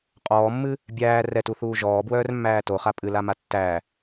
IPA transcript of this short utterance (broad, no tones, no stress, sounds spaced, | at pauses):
qʼ ɔː mː ɨ | bʲ æː r ɛ t u θ uː ʒ ɔː b w œː r mː æː t o χ a pʼ ɨ l a m a tː æ